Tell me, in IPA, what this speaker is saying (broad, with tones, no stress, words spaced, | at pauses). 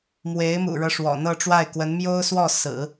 mwe˧˥ɪ̯mṵ˨˩ɻɤ˦ ʂwɔ̰˨˩n̪ɤ˥˧ʈ͡ʂwa˥˩ɪ̯kwə˧˥n mjo˥ʊ̯swɔ˥˩ sɹ̩˨˩˦